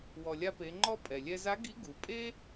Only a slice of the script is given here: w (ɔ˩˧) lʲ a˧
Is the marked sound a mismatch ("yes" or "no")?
yes